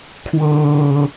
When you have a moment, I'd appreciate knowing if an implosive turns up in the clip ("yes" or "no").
no